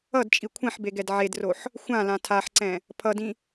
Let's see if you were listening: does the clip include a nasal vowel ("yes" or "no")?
yes